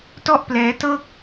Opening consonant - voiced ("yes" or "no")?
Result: no